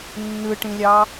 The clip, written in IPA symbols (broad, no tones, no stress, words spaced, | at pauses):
nːɯʈĩlʲɑ